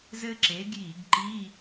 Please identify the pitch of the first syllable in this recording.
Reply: high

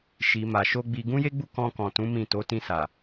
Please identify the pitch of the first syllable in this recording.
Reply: low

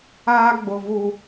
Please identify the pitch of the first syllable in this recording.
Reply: high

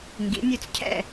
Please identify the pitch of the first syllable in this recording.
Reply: rising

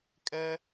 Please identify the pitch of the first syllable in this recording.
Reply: high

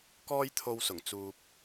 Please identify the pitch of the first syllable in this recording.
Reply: high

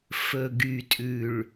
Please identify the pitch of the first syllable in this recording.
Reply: low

